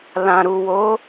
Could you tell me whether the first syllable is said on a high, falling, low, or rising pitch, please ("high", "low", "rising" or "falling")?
low